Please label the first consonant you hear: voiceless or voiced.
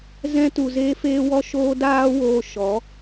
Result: voiced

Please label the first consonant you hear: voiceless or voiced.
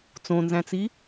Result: voiceless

